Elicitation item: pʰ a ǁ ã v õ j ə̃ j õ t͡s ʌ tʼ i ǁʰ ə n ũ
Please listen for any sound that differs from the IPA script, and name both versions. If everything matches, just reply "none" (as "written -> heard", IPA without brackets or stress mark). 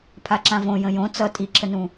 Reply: none